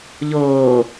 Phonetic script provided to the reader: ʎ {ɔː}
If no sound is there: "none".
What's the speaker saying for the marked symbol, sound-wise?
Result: oː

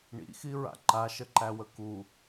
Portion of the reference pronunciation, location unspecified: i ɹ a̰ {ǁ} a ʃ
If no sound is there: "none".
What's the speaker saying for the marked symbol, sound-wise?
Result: ǃ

